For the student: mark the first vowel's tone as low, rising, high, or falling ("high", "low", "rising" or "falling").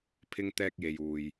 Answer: high